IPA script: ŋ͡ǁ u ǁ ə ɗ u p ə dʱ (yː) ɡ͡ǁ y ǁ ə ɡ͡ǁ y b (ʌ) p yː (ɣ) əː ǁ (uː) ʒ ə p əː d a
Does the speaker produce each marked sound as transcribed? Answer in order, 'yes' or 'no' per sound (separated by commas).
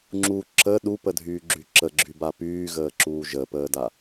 yes, no, yes, yes